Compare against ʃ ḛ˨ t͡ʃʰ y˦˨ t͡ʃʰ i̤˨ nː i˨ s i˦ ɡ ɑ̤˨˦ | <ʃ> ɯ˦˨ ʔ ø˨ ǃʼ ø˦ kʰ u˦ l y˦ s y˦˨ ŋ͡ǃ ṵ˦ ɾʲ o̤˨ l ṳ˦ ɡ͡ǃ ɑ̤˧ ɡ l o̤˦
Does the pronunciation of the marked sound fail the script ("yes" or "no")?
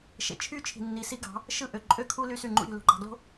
no